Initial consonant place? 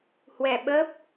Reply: glottal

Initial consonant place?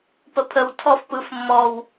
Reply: labial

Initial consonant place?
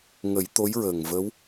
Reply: velar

